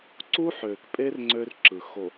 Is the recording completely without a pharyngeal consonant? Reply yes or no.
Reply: no